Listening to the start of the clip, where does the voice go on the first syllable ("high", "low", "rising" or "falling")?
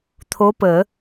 rising